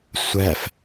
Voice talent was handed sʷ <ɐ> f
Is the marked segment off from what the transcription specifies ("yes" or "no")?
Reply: yes